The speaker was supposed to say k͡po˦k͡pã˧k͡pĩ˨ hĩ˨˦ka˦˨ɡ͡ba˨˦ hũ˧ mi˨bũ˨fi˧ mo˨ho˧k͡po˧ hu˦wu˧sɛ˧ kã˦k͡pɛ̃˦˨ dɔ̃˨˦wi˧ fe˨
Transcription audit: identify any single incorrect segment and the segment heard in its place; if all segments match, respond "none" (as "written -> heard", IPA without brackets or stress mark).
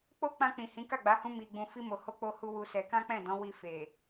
b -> ɡ͡b